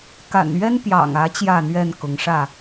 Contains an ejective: no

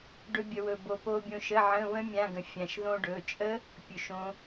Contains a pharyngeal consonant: yes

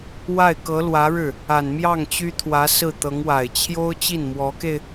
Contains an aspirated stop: yes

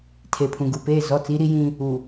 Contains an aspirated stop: yes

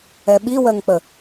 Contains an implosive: yes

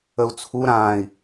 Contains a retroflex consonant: no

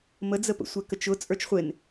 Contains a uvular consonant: yes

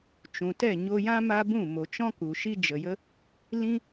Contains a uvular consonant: no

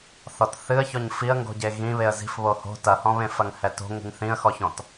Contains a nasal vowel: yes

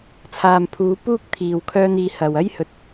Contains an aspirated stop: yes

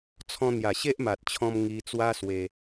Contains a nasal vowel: yes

